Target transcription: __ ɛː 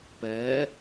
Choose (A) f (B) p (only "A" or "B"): B